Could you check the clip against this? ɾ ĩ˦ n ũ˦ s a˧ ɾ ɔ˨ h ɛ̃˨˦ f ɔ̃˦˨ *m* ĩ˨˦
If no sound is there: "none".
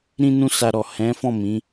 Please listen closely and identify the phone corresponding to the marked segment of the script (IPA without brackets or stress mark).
m